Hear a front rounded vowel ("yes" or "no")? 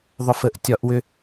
yes